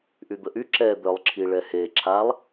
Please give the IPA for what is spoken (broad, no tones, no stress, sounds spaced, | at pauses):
ʔ y d̪ ə ʔ y ǁ ɛ d̪ œ lˠ ǁʰ i ɭ ɛ h e ǁʰ a lˠ